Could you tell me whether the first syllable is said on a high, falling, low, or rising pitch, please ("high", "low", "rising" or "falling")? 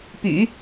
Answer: low